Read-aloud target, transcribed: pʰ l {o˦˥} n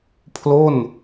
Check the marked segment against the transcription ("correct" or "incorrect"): incorrect